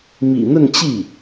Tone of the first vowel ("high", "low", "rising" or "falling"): low